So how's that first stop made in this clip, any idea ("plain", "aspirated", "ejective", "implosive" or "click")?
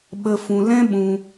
implosive